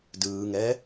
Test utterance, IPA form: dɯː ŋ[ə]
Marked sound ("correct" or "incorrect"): incorrect